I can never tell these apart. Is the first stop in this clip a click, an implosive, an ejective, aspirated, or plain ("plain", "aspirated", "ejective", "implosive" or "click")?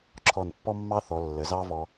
click